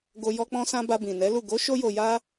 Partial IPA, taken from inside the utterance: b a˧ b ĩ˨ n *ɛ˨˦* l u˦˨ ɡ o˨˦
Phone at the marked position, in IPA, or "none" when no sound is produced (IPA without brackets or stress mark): ɛ˨˦